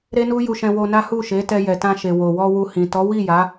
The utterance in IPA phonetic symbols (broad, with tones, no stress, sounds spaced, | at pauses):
ɾ e˦ n u˦ j u˧ ʃ ɛ̃˧ w o˧ n a˦ h u˦˨ ʃ e˨˦ t ɛ˧ j ɛ˨ t ã˧ ʃ e˨ w o˨ w ɔ˧ w u˧ h ĩ˨ t ɔ˨˦ w i˦˨ j a˨˦